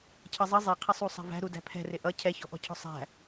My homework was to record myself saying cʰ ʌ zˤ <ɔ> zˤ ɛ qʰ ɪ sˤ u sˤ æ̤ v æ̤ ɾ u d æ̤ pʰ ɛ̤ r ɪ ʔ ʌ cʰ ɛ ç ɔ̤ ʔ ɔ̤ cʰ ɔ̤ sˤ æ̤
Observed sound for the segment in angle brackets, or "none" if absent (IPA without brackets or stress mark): ʌ